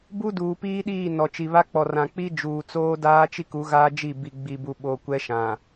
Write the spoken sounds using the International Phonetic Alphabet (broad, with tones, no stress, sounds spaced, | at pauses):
b u˦ d uː˨ p iː˦ ɗ iː˦˨ n ɔ˨ t͡ʃ i˨ β a˦ k͡p ɔ˨ r ã˨ k͡p i˦ d͡ʒ uː˨ t͡s oː˦ d aː˦ t͡ʃ i˦ k u˨˦ ɣ aː˦ d͡ʒ i˦˨ b i˨ ɡ͡b i˨ b u˨ ɓ o˨ kʷ ɛ˦ ʃ ã˨